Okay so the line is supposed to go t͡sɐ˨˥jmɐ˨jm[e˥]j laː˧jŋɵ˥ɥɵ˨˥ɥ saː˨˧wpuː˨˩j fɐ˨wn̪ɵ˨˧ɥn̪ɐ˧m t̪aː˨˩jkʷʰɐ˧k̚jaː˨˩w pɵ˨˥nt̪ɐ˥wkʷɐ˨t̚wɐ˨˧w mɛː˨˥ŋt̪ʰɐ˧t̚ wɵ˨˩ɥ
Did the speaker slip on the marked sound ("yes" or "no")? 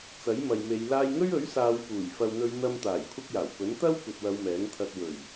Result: yes